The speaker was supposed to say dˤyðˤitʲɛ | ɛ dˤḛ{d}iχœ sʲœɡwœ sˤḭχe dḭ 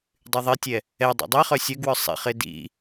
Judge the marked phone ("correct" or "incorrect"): incorrect